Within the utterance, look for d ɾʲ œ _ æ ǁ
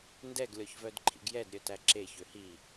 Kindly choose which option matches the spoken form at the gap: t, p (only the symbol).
t